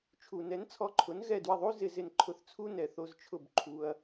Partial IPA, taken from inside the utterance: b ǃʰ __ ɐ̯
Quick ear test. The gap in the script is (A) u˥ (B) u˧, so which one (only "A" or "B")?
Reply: B